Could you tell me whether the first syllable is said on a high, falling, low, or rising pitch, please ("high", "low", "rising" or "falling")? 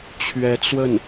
rising